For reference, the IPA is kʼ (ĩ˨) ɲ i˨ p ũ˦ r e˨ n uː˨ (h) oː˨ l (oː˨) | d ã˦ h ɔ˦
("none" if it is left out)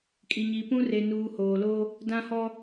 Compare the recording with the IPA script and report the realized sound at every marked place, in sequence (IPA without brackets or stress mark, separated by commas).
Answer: i˨, h, oː˦